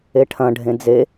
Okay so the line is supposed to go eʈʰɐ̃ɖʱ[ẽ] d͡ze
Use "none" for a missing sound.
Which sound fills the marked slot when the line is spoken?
ẽ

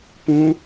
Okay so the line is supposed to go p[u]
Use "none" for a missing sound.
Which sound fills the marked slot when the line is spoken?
ũ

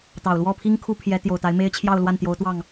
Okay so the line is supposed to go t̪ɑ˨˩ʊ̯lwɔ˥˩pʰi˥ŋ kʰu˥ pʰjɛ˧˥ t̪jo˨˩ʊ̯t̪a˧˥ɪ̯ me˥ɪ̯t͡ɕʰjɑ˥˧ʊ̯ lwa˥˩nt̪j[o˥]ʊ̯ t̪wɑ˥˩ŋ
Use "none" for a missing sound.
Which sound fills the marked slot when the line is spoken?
o˧˥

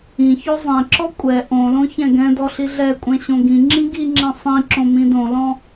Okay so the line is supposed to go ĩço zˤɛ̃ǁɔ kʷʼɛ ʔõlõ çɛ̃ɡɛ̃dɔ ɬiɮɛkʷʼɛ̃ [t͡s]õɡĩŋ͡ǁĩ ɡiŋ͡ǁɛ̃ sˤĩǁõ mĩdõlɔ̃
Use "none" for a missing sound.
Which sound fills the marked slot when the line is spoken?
ɕ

